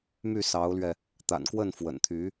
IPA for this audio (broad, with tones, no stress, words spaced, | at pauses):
my˥˩sɑ˧˥ʊ̯lɥɛ˧ | t̪a̰˨˩nkwə˥˩n fwə̰˨˩nt̪ʰy˧˥